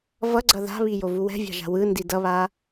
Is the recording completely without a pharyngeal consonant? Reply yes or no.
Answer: yes